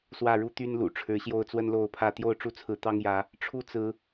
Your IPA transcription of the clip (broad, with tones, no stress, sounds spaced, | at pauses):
s w ä˥˨ ɻ u˦ t̪ y˦ n l ṵ˨˩ ʈ͡ʂʰ ɻ̩˨˦ ɕ j o˥˨ ʊ̯ t͡s w ə˦ n l o˥˨ ʊ̯ pʰ ä˥˨ t̪ j o˥˨ ʊ̯ ʈ͡ʂ u˥˨ t͡sʰ ɹ̩˨˦ t̪ ɑ˦ ŋ j ä˨˦ | ʈ͡ʂʰ u˦ t͡s ɹ̩˨˦